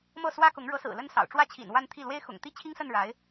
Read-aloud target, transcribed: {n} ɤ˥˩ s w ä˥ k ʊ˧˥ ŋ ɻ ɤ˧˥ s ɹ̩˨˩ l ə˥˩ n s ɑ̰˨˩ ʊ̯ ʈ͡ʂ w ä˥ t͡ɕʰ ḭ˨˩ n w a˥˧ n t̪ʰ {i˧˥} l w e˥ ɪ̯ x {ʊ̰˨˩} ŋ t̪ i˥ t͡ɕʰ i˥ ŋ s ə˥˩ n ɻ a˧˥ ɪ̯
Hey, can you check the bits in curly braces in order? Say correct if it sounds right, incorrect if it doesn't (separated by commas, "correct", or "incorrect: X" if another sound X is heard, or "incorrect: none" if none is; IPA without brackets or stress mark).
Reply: incorrect: m, incorrect: i˥˩, correct